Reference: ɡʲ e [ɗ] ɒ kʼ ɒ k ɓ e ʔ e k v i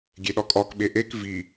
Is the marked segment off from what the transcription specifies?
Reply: no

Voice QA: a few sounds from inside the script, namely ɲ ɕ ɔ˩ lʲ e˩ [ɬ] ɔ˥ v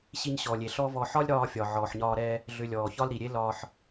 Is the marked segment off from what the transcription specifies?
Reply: no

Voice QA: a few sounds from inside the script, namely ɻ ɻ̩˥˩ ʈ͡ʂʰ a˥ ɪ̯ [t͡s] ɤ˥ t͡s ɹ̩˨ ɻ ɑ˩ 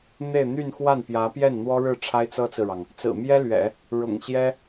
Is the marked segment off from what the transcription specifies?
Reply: no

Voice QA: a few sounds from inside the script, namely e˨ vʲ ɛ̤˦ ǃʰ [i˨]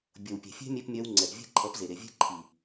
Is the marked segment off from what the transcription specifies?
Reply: no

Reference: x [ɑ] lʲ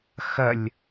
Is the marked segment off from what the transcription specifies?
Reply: yes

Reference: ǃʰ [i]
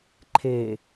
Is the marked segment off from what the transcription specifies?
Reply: yes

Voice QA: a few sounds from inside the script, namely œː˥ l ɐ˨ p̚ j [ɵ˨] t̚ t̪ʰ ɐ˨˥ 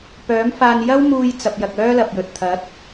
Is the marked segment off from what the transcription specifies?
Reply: no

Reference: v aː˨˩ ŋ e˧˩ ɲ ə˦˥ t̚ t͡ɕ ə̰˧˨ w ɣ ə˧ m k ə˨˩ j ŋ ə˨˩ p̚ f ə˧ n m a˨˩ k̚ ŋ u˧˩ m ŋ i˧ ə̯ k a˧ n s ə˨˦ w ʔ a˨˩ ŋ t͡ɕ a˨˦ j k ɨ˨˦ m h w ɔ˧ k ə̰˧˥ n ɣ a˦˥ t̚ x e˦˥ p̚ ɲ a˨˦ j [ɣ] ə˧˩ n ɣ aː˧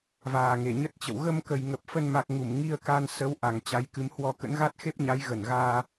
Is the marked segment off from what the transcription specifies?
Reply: no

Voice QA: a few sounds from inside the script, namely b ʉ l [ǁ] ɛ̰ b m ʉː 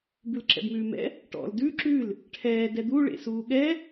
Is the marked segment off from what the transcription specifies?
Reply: no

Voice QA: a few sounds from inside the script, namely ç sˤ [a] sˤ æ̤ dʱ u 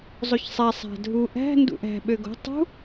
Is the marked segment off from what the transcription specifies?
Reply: yes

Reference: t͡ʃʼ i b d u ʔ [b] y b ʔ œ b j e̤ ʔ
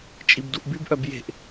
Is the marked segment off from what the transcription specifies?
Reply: no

